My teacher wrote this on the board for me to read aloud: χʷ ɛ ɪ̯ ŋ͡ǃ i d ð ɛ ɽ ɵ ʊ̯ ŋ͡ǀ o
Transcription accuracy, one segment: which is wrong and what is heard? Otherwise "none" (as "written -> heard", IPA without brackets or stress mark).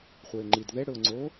none